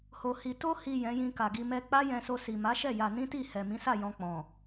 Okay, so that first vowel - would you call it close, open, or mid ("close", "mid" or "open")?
mid